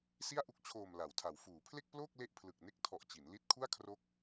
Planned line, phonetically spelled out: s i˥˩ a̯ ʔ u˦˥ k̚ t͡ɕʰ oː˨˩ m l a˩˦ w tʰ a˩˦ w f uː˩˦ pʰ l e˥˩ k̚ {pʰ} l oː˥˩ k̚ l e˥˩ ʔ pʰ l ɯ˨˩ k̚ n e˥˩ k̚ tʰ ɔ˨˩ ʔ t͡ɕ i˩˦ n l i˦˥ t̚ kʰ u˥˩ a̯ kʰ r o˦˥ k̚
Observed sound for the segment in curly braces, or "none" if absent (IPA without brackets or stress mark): p